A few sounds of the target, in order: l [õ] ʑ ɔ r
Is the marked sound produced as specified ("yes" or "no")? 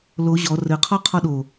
no